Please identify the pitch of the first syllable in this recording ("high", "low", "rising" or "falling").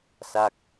falling